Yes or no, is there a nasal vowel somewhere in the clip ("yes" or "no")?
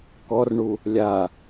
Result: no